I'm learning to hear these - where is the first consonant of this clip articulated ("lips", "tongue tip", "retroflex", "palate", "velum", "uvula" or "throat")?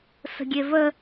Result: tongue tip